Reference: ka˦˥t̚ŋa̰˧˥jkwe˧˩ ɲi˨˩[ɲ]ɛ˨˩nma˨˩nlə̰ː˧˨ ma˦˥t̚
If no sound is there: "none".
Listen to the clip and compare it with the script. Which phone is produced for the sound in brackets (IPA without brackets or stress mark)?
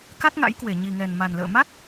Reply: ŋ